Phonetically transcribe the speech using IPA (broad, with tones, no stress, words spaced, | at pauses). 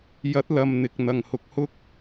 jɐ˨˥t̚lɐ˨m n̪ɪ˨k̚n̪ɐ˨ŋ hʊ˨˥k̚hʊ˥k̚